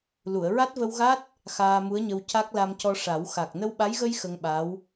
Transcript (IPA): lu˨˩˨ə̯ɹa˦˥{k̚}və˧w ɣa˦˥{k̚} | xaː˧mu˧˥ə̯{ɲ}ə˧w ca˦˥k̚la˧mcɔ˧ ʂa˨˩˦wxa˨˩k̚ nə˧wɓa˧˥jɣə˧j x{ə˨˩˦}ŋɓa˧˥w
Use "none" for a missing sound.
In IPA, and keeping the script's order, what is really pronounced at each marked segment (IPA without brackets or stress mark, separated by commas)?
t̚, t̚, ɲ, ə˧